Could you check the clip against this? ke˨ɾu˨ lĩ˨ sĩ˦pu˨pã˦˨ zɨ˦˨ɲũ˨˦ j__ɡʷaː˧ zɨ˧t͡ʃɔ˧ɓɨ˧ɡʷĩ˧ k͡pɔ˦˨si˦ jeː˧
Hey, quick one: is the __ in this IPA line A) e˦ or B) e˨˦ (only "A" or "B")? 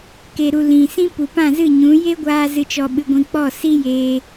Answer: A